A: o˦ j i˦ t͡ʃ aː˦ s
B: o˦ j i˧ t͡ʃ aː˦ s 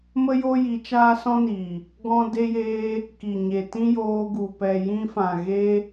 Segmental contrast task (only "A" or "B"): B